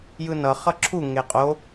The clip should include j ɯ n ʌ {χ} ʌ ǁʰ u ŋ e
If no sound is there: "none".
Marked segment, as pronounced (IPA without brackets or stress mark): χ